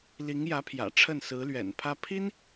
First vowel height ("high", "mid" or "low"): high